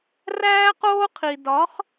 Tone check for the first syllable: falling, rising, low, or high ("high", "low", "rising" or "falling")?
high